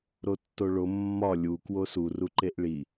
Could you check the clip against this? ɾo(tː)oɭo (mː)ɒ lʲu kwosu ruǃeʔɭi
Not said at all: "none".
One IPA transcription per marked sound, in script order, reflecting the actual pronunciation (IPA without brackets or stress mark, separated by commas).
tː, mː